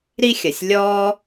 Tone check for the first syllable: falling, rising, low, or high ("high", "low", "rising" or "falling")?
high